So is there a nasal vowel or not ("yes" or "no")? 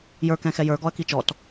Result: yes